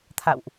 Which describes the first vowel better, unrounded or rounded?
unrounded